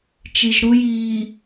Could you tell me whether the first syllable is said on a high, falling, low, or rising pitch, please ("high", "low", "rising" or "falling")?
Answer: low